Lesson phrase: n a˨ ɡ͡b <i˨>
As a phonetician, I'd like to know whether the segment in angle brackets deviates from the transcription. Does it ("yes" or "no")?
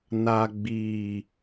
no